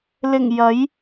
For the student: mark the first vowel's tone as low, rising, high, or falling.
low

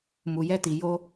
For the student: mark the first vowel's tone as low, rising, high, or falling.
low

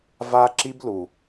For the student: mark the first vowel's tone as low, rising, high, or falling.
high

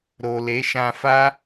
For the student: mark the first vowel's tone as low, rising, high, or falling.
low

